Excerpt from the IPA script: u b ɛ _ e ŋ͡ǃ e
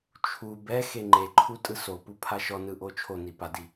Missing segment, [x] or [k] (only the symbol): x